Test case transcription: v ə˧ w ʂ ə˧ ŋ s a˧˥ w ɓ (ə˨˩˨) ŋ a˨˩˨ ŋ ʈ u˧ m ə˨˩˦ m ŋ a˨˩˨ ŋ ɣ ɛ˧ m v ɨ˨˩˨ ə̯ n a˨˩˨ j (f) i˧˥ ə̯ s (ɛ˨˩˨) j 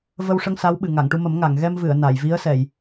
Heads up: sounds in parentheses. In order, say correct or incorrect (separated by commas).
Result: incorrect, incorrect, correct